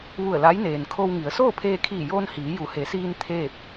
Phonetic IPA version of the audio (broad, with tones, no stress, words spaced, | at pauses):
ʋu˧˩ə̯la˧˥jneː˩n kʰo˧wŋi˩˧ə̯ soː˥˨pʰeː˧kʰiː˧˩joː˧n hiː˩˧ju˩˧he˩˧siː˧n t̪ʰeː˥˨p̚